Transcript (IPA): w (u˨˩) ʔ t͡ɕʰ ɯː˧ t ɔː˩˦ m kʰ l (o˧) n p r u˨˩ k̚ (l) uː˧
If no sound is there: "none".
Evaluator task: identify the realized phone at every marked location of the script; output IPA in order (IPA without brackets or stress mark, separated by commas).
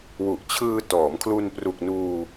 u˨˩, u˧, n